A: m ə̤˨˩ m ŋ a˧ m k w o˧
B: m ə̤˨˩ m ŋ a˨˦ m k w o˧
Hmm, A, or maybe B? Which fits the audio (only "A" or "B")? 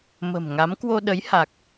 B